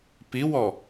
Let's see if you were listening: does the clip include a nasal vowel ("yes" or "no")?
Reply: no